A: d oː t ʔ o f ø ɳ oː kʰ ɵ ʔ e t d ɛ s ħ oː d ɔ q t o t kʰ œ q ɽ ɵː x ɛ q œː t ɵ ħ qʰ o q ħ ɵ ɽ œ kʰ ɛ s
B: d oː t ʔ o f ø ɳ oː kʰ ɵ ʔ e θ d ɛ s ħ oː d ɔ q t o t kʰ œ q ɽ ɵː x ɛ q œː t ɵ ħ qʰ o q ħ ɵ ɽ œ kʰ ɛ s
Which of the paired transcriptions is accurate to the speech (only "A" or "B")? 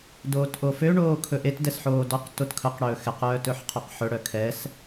A